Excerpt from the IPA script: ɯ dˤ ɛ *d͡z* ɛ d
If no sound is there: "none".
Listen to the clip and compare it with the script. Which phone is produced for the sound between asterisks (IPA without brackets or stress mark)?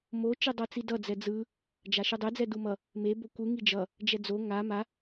d͡z